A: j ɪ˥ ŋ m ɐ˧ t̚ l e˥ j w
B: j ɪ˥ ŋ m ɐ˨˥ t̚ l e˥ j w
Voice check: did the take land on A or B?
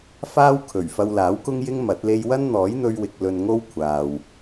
B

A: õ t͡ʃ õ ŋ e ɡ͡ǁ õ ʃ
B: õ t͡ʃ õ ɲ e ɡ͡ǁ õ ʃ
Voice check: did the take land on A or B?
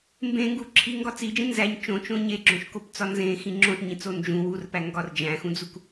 B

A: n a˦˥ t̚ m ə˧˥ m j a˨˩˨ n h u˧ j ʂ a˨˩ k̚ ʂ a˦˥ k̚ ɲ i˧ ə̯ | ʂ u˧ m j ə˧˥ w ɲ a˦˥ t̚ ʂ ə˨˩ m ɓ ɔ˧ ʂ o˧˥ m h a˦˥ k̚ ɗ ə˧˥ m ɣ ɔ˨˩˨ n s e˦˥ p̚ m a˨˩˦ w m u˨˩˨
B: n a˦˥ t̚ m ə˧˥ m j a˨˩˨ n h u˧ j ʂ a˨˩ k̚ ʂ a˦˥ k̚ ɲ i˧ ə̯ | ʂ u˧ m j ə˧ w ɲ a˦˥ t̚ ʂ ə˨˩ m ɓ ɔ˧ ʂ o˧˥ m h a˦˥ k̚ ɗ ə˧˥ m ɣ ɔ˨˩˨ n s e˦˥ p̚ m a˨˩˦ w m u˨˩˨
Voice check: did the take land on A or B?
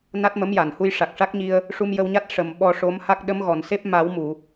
B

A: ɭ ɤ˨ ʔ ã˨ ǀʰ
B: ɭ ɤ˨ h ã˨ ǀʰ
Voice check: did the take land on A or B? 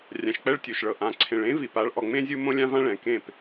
A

